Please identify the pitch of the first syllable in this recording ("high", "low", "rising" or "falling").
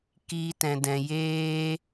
high